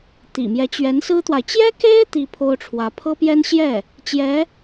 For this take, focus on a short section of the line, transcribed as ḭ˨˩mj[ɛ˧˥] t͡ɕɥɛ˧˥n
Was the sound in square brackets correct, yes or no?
yes